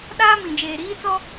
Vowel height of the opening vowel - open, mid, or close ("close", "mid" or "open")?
open